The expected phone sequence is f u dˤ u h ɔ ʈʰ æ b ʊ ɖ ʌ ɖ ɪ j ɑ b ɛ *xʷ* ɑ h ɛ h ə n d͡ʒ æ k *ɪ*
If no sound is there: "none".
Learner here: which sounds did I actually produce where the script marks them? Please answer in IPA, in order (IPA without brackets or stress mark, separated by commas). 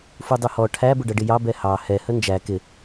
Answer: h, ɪ